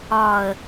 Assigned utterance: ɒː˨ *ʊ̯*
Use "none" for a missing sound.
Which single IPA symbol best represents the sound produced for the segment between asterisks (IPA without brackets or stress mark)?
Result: ə̯